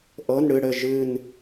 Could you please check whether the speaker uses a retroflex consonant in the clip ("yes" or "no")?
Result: yes